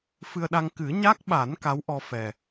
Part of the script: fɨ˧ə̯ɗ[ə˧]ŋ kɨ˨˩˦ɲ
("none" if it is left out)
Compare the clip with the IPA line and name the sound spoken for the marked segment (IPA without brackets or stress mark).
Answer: a˧